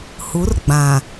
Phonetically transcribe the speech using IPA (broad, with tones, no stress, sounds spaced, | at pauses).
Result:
h u˨˦ r ɡ͡b ã˨